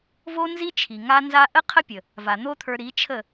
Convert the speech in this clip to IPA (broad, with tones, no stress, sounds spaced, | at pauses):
v o˦ n z i˦ t͡ʃʰ i˨ ŋ a˦ n z a˦ ʔ ə˦ qʰ ə˦ pʲ ə˨ | v a˨ n̪ o˦ t̪ʰ ə˞˧ ɾ i˨˦ t͡ʃʰ ə˦˨